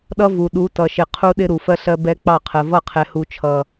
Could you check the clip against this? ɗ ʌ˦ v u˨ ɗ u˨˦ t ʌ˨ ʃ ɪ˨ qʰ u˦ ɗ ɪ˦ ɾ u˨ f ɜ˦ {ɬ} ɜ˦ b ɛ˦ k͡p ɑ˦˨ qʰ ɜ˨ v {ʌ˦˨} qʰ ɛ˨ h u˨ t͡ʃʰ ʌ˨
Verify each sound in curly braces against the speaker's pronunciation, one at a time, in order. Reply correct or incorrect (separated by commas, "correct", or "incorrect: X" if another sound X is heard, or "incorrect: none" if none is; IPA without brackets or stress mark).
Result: correct, correct